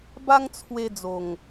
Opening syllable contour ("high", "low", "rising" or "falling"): high